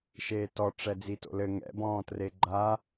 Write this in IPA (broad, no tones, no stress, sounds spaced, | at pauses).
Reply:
ʃ eː t ɔ ʈ͡ʂ ɛ d͡z i t o̰ l ɘ ŋ ɛ̰ b ɔ̃ː t r e ɡ͡ǃ a